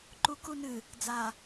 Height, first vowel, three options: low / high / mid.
high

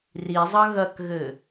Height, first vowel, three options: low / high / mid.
high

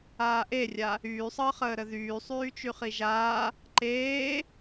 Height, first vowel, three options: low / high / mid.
low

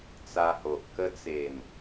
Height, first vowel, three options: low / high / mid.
low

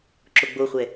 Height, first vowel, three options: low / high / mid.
mid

